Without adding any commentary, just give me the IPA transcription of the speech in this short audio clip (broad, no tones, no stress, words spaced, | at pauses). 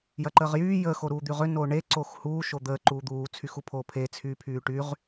jɐǃəːʁjyː jə xoɾuːd̪yʁø noːɳe ǀoːxhuː ʃod̪əː ǃuːd̪uː t͡sʰyxupʰoːpʰe t͡sʰyːpʰyːʈyʁ